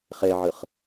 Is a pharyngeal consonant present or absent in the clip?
present